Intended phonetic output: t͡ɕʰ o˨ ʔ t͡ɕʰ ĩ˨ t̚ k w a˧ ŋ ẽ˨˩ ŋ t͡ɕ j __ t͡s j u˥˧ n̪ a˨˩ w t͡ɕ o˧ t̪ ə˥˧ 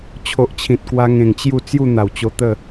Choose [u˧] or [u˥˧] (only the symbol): u˥˧